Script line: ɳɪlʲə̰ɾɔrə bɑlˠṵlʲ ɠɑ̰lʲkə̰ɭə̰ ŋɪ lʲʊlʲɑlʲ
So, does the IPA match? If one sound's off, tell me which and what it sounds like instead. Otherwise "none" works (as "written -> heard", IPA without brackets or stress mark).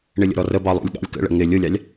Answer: none